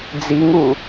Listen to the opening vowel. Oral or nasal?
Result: oral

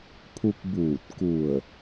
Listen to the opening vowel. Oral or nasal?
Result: oral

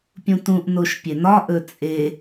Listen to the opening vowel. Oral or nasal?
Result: nasal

